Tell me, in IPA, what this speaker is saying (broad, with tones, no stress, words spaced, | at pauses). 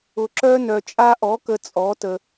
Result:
ʊ˧ǁœ˥ nœ˧t͡ʃʼa˥ ʔɔ˨˥kə˧ t͡sʼɔ˨˥tə˧